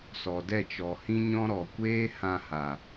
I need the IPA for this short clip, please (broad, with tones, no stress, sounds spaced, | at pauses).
s ɔ˨ d ɛ˦˨ t͡ʃ ɔ˨ h ĩ˦ ɲ ɔ̃˦ ɾ ɔ˨ kʷ eː˦ h ã˧ h a˨